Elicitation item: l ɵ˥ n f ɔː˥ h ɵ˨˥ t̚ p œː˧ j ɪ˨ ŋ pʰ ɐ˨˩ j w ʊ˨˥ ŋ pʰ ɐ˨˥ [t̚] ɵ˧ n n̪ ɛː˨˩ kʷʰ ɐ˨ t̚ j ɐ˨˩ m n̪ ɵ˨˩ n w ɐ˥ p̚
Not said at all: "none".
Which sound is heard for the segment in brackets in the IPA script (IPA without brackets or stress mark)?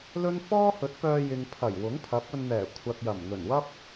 p̚